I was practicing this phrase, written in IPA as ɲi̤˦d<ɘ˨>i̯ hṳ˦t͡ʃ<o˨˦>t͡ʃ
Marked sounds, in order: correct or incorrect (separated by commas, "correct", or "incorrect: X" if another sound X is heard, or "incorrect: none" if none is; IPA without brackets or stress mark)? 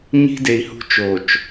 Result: incorrect: e˨, incorrect: o˨